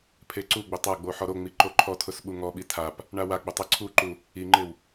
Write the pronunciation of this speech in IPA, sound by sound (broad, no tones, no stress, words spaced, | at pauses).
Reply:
pʰeǀuɡ͡bʊ tˤaɡ͡bo ħɔɾoŋ͡mi ǃoǃʰɔtʰʊs ɓuŋɔɓi tʰap | ɳawaɡ͡bʊ tˤiǀʰuǃu | iŋ͡ǃɪw